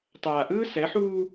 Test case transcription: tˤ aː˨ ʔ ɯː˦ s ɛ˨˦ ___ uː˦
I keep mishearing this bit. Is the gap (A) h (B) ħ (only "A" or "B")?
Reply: B